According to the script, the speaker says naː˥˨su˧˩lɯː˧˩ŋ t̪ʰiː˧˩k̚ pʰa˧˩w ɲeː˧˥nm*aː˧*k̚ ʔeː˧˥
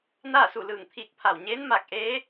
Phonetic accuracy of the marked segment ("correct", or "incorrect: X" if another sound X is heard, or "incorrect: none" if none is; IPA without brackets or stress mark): incorrect: aː˧˩